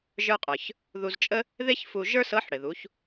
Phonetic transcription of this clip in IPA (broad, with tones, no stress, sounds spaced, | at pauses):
ʒ ə˞˧ qʼ ə˞˩ ç | ð u˧ z t͡ʃʼ ə˥ | ð e˥ ç f u˧ ʒ ə˞˥ s ɤ˧˥ ħ ɽ ɪ˩ ð u˩˧ ç